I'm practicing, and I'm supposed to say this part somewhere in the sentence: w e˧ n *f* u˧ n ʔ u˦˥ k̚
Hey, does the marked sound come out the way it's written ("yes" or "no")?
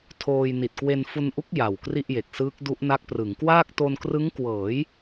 yes